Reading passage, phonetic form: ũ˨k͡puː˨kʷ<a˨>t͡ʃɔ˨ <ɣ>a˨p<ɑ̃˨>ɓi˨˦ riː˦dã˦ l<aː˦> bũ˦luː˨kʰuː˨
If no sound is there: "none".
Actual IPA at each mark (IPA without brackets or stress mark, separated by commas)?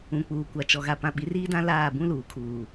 a˨, ɣ, ã˨, aː˦˨